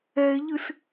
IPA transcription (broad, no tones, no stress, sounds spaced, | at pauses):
ɛ e̯ ʎ ɨ s